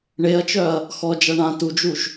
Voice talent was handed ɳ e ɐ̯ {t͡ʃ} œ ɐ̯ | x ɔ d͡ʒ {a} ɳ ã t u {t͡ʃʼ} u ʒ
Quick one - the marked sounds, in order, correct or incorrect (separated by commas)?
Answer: correct, correct, incorrect